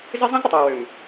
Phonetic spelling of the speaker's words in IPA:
z ɪ˦ zˤ ə̃˦ z ɾ ə˨ tˤ w ɪ˨ w ø˨ m

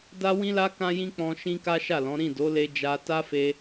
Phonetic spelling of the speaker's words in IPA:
d a˦ w ĩ˦ l a˦ k ã˦ j ĩ˦ k͡p ɔ̃˧ ʃ ĩ˦ k a˦ ʃ a˦˨ l ɔ̃˨˦ ɾ ĩ˦˨ d o˨˦ l e˧ d͡ʒ a˧ t a˦ f e˧

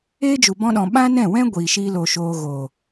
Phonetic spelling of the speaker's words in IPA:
eː˦ d͡ʒ u˨ b ɔ̃˧ ɗ ɔ̃˨ ɓ ã˦ n ɛ̃˦˨ w ɛ̃˦ ɡʷ iː˨ ʃ iː˦ l o˧ ʃ oː˧ ɣ o˨

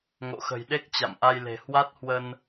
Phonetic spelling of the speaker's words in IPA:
ŋ o̰˧˨ x ə̤˨˩ j ɗ e˦˥ k̚ t͡ɕ a̰˧˨ m ʔ a˧ j l e̤˨˩ h w a˦˥ t̚ h w ə˧ n

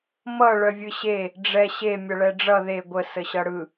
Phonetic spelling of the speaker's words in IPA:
m ʌ ɭ œ vʲ ɯ ɕ e | ɖ͡ʐ ɛ ɕ e mʲ ʌ ɭ ɛ ɖ͡ʐ ʌ ð e ɡʷ ə s ə ɕ ʌ ɽ ɯ

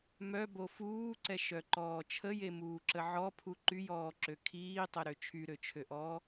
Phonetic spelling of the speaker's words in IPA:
m œ b o f uː ǀ ɛ ʃ œ ǃ ɔː t͡ʃʰ ə j e m uː ǁ ə ʕ ɔ pʰ u ǃ y j ɔː ǁ ø kʰ iː tˤ ɛ ɾ ø t͡ʃʰ y ɾ ø t͡ʃʰ ø ʔ ɔː

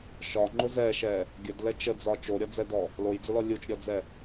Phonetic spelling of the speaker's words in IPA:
ʃ ɒ ŋ͡ǃ ʊ z ɛ ʃ ɛ | ɡʲ ə d l ɛ t͡ʃ ə d͡z ɒ t͡ʃ o ɾʲ ɒ d͡z ɛ d ɔ | l o j d͡z ʊ l ɔ lʲ u t͡ʃ ɾʲ ɔ d͡z ɛ

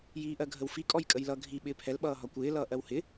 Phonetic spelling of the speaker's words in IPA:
j iː ʔ ɜ ɡʱ ə w f i kʼ ɔ j kʼ ə j l ʌ ɡʱ i ɓ ɪː pʰ ɛ l ɓ ʌː ɦ ɒ kʷ ɪː l ʌː ʔ ɜ w h ɪ

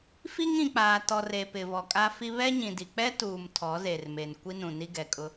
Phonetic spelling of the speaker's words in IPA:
f i˦ ŋ ĩ˨ k͡p aː˨ t ɔ˨ r e˨ p ɪ˨ v ɔ˨ kʼ a˦ f i˦ β ɛ˦ ɲ ĩ˨ d i˨ k͡p ɛ˦ t uː˨ m tʰ ɔ˨˦ z e˨ r m e˨ n kʷ i˦ n ũ˨ n i˦ ɡ ɛ˨ kʼ ʊ˦

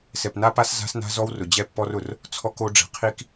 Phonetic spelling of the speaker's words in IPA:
s ɛ˨ p n a˦ p a˦ s z a̤˦ s n a̤˦ z ɔ˦ w r ʊ˨ d͡ʑ ɛ˦ pː ɔ˦ r ʊ˨ r | t͡sʰ ɔ˦ k o˦ ɖ͡ʐ ɛ̤˨ qʰ i˦ k

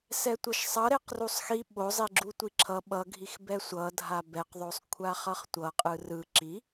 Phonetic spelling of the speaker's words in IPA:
s ɛ tʷ ʌ ʃ sˤ ʌ ɾ e q r u sˤ x i ɓ o zˤ i ɡ͡ǁ u tʷ i ǁʰ ʌ ɓ ʌ ɡʱ i x b ɛ sʷ ʌ dʱ a b ɛ q ðˤ o sˤ kʷʰ a χ ʌ χ tʷ ʌ qʼ ɯ r ɯ ǁ i

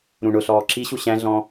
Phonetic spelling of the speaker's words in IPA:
ɾ ũ ɳ ʊ ɬ ɔː ǁ i ɕ u ɕ æ̃ ɮ ɔ̃ː

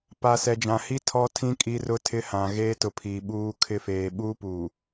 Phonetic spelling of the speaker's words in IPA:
p a˨ s ɛ˨ d͡ʒ ã˨ h i˦ tʰ ɔ˦ tʰ ĩ˦ kʼ i˦ r ʊ˦ tʰ ɪ˦ h ã˨ ɣ eː˦ t ʊ˨ pʰ i˨ ɓ uː˦ kʰ ɪ˦ f eː˨ ɓ uː˦ p uː˨

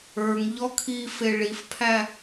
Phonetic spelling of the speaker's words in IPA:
ə˞ ŋ ʎ ɔ kʰ i f e ɭ i f pʰ æ

